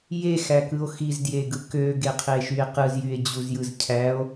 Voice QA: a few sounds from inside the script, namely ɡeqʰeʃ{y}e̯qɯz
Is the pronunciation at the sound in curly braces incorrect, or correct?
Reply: correct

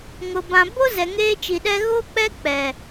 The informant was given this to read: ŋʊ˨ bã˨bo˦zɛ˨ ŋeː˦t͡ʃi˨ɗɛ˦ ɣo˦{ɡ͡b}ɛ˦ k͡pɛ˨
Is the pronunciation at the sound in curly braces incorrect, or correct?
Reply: incorrect: k͡p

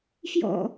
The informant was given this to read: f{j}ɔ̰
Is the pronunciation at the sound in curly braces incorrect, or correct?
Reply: correct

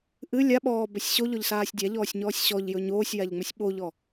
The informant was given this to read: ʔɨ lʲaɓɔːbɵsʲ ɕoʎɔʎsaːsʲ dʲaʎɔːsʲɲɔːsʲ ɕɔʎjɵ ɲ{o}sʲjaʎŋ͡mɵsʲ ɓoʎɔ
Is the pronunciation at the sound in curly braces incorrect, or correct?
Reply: incorrect: oː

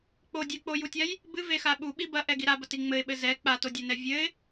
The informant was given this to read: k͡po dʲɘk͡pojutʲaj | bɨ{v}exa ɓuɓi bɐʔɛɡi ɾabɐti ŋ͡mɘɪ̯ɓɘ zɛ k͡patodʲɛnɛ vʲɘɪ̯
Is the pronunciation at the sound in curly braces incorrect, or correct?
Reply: correct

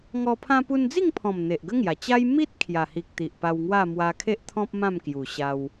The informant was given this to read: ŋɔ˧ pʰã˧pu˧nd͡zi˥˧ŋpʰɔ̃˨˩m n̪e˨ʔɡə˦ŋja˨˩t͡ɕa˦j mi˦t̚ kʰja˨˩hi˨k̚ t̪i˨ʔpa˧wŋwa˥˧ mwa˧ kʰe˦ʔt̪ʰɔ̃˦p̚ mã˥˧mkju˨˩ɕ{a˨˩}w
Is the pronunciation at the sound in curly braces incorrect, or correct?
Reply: incorrect: a˧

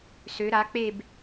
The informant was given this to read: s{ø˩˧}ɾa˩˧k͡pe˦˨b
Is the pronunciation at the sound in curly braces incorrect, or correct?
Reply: correct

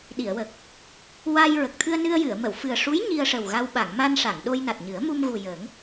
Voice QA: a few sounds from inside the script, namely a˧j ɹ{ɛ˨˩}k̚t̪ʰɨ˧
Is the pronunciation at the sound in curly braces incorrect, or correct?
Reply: incorrect: ə˨˩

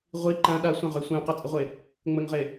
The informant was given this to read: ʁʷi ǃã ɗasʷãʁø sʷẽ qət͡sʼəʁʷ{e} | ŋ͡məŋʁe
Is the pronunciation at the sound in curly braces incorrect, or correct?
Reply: correct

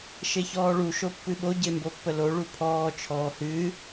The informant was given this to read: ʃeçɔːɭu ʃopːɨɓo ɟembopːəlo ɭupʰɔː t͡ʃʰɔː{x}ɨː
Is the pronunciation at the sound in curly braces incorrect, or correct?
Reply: incorrect: h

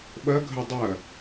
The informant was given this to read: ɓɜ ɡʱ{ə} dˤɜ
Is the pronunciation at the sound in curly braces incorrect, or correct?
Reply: correct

